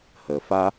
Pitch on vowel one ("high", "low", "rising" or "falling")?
low